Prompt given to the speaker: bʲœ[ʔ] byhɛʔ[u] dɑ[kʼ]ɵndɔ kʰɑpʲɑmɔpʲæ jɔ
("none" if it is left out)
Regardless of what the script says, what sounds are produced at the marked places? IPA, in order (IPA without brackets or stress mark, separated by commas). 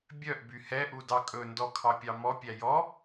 ʔ, u, kʼ